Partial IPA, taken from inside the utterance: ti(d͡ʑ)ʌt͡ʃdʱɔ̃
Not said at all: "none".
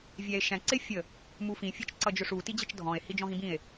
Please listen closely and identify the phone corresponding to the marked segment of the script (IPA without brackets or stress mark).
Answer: d͡ʑ